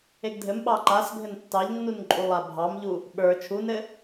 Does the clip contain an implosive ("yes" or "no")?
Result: yes